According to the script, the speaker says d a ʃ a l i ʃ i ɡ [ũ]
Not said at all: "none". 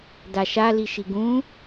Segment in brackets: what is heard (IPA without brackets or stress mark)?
ũ